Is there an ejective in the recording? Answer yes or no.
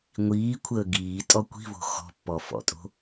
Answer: yes